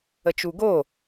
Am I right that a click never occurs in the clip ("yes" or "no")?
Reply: yes